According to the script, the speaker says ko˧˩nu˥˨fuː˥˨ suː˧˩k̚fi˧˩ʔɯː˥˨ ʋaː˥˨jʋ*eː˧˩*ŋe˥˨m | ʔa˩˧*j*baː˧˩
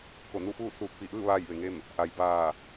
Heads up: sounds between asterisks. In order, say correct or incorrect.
incorrect: e˧˩, correct

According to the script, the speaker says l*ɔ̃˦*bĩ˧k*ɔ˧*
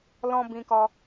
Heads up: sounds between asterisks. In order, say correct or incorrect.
correct, correct

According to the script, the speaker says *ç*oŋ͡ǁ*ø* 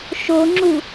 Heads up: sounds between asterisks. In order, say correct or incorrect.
incorrect: ʃ, incorrect: u

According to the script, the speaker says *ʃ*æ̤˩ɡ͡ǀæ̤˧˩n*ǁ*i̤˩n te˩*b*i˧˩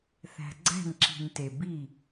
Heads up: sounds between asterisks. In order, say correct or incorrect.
incorrect: θ, correct, correct

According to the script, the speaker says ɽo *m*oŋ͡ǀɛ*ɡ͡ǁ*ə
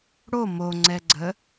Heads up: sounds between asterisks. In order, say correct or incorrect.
correct, incorrect: ɡ͡ǀ

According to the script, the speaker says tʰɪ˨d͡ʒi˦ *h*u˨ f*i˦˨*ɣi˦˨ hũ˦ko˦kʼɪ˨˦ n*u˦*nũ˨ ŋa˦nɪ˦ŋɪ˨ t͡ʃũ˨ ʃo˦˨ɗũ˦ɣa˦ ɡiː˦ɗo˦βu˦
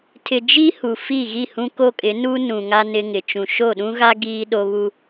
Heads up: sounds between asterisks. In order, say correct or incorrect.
correct, correct, correct

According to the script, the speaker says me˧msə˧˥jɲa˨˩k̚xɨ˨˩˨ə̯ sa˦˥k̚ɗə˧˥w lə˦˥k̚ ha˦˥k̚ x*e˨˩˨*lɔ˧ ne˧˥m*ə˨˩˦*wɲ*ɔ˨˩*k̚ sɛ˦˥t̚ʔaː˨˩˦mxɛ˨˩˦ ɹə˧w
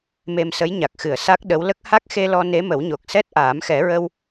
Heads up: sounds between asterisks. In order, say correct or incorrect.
incorrect: e˧, correct, incorrect: o˨˩

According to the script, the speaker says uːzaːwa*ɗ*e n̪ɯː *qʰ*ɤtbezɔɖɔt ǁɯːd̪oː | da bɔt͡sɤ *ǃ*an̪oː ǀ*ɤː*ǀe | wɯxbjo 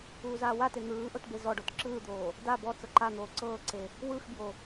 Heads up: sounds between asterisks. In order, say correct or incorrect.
incorrect: t, incorrect: ʔ, correct, correct

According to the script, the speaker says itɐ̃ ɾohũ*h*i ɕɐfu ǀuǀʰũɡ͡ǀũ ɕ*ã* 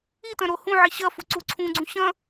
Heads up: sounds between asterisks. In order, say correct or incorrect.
incorrect: ʕ, incorrect: ɐ̃

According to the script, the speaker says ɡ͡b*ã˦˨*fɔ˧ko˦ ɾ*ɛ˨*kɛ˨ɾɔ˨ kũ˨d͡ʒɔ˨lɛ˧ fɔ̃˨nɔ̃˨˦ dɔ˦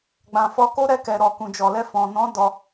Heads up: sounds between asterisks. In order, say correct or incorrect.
incorrect: ã˨, incorrect: ɛ˧

